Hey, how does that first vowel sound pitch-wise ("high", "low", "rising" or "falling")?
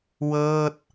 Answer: falling